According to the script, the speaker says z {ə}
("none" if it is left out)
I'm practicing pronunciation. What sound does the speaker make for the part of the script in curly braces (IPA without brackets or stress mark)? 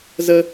ə